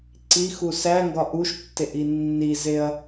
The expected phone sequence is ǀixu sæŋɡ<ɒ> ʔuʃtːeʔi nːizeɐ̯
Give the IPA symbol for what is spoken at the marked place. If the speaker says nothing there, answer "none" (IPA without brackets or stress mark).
ɒ